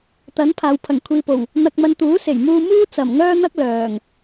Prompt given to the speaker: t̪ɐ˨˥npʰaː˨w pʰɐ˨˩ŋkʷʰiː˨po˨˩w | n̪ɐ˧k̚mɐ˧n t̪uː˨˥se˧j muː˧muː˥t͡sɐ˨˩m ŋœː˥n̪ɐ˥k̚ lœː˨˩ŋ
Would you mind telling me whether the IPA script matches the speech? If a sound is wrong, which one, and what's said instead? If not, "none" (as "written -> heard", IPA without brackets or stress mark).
e˧ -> e˨˩